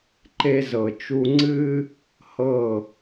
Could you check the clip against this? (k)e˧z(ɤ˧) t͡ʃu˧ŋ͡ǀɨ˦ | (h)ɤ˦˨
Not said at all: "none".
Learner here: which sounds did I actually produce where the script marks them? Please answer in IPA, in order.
ǃ, ɤ˨, h

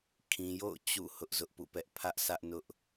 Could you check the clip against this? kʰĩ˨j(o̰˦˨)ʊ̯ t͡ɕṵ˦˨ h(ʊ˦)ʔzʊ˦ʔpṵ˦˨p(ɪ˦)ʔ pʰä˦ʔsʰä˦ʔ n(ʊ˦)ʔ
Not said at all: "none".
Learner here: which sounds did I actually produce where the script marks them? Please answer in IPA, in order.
o̰˦˨, ʊ˦, ɛ˦, ʊ˦

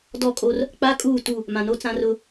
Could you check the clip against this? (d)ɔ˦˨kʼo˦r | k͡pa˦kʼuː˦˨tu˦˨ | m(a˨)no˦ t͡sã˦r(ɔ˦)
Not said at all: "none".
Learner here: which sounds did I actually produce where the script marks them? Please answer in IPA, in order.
d, ã˨, ʊ˦

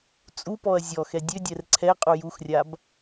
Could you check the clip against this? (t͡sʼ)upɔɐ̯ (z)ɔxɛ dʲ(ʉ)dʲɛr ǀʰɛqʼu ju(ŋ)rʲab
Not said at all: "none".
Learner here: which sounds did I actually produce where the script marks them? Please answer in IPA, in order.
t͡sʼ, zʲ, ø, x

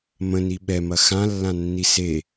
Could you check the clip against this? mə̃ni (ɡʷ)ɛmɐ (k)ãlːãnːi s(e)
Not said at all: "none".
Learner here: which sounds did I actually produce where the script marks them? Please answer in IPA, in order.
ɓ, x, e

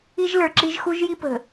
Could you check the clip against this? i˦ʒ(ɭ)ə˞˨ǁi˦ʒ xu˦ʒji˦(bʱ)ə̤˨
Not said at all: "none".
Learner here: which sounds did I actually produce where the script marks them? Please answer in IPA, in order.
l, p

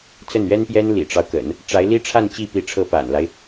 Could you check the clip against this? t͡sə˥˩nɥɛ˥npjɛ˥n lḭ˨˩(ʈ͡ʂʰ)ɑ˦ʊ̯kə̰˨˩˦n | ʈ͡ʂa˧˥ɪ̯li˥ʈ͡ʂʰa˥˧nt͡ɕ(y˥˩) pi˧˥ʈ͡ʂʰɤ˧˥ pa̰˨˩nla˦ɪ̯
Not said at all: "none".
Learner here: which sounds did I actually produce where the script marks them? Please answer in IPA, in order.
ʈ͡ʂ, i˥˩

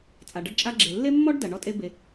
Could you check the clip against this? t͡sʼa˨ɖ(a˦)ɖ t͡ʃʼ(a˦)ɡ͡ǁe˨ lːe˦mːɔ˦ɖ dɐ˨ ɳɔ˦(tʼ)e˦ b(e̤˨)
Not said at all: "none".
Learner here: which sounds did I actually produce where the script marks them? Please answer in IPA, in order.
ɐ˦, a˦, tʼ, e˨

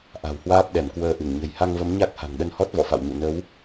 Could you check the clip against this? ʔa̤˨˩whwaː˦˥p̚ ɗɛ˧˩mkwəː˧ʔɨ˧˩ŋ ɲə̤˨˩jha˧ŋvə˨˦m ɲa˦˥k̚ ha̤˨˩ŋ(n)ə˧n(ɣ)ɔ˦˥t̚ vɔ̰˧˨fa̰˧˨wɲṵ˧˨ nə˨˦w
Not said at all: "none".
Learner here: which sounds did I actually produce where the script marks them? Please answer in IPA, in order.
ɗ, h

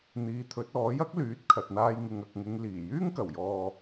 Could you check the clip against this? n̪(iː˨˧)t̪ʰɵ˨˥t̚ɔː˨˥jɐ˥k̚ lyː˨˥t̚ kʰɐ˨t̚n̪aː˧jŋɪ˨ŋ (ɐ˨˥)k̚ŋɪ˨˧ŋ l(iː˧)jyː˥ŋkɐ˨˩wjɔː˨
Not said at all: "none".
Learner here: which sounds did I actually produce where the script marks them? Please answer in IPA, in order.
iː˨˧, ɐ˨, iː˨˩

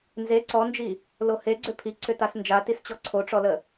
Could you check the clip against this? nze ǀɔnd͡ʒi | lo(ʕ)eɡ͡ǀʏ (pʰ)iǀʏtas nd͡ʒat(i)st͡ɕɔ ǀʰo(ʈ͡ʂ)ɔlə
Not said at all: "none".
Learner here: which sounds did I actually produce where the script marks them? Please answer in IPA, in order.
h, pʰ, i, ʈ͡ʂ

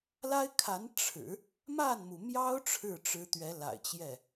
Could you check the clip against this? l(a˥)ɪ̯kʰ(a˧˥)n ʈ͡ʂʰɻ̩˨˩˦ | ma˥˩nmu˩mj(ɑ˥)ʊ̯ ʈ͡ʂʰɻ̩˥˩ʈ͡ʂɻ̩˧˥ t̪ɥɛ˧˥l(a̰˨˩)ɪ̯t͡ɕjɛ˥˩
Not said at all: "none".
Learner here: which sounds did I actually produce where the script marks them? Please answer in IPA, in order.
a˥, a˧˥, ɑ˥, a̰˨˩

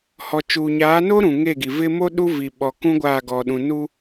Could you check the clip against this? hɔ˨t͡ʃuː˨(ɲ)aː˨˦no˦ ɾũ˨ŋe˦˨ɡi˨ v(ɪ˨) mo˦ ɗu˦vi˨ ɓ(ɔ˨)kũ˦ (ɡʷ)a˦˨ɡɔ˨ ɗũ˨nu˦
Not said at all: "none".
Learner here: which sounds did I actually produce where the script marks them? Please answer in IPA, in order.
ɲ, ɪ˦, ɔ˨, ɡʷ

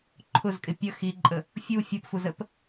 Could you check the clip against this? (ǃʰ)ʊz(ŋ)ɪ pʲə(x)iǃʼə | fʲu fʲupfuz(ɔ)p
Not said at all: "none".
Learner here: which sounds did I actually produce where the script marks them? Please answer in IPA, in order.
ǃʰ, kʼ, x, ə

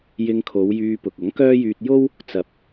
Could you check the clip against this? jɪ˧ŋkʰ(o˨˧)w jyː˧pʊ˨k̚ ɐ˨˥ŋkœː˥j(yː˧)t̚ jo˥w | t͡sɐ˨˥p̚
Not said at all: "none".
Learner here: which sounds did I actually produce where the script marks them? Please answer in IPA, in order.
o˨˧, yː˧

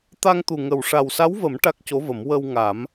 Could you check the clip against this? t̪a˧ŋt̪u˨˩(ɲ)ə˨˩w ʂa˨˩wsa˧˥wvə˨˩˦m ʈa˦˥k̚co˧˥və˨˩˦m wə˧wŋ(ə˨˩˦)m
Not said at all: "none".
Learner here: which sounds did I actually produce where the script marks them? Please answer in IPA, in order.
ŋ, a˨˩˦

